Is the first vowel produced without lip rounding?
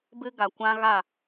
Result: yes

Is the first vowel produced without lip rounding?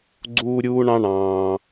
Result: no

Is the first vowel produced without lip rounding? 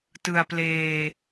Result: yes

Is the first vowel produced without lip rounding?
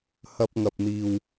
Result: yes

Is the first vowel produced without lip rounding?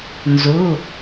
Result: no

